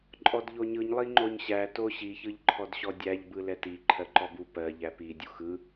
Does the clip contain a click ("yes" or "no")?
yes